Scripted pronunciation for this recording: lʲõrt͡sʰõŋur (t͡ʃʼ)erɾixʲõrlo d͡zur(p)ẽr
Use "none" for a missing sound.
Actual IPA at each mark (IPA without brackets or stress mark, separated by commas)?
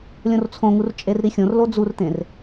t͡ʃʼ, t̪